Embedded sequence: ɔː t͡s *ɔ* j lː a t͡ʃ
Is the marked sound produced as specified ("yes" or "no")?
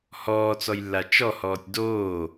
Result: yes